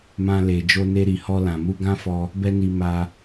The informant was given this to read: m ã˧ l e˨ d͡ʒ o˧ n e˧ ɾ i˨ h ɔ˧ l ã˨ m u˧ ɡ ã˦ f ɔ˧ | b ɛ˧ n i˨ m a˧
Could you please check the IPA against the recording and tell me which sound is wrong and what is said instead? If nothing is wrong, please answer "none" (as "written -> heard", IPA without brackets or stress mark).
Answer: none